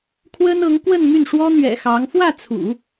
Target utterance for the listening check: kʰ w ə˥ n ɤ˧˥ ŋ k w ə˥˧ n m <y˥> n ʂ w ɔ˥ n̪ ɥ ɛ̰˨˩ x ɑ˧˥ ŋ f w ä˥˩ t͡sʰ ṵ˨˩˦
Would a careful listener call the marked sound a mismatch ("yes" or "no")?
yes